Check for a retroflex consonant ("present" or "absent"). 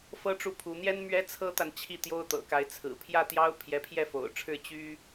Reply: present